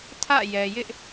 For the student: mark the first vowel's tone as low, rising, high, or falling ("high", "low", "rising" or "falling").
falling